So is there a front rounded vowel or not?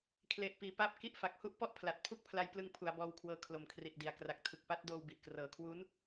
no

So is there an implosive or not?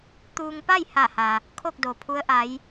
no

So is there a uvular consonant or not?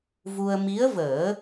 no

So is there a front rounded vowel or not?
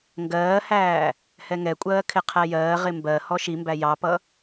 no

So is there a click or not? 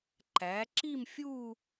yes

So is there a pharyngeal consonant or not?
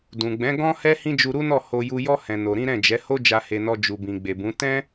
no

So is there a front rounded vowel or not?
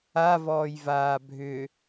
yes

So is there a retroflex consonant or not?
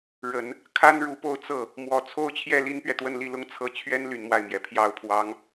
yes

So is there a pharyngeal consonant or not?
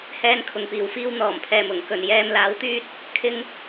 no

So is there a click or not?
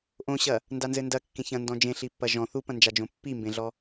no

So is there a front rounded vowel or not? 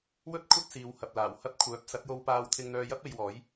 yes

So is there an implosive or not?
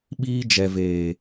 yes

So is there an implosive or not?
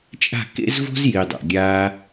no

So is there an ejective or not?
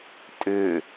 yes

